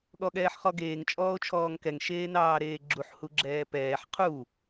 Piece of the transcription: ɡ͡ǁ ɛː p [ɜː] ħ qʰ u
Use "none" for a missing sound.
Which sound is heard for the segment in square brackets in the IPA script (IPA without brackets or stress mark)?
ɛː